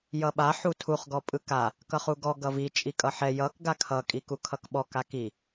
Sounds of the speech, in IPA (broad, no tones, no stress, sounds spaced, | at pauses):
j ʌ ɓ a ħ u tʰ u χ ɡ ɔ pʼ ɯ k a | k ʌ χ u ɡ ɔ ɡ ʌ v i t͡ʃʼ i kʼ ʌ ħ ɛ j ʌ k ɡ a kʰ ʌ kʼ i k u kʰ ʌ k ɓ ɔ k a k i